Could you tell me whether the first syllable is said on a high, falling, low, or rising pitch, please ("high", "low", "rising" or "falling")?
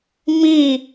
falling